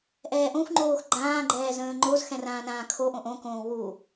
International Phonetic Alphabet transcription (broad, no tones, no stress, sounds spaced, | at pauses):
ʔ ɛː ʔ õ xʷ ŋ͡ǃ oː x ɡ͡ǃ ãː ɡ͡ǃ ɛː z ə̃ː ŋ͡ǃ o z x ɛ̃ r ãː n ãː kʰ o ʔ õ ʔ õ k õː w u